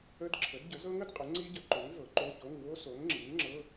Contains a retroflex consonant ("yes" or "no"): no